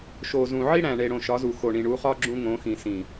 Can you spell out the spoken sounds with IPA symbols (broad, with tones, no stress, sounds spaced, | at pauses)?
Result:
ʃ o˨ z ũ˨ ʕ i˦ ɽ æ̃˨ ɳ e˨ ɽ õ˨ ʃ ɒ˨˦ z u˨ x o˨ ɳ ĩ˨ ɳ u˨˦ χ ɒ˦ ɡ͡ǁ ũ˦ ŋ õ˨˦ x ĩ˨ s ĩ˨